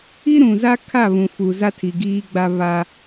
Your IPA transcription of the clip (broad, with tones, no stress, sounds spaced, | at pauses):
i˦ ɾ ũ˨ z a˦ kʰ a˦˨ β ũ˨ f u˨ z a˦ tʰ i˨ ɡ iː˦ ɡ͡b a˦ β a˦